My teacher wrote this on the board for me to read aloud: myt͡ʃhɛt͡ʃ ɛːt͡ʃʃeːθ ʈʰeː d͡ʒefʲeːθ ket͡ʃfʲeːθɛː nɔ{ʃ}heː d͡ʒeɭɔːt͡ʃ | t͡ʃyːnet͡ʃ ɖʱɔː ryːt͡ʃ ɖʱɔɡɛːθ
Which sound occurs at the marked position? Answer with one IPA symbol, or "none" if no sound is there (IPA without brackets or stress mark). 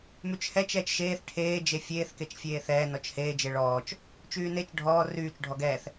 t͡ʃ